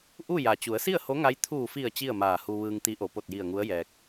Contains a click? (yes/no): no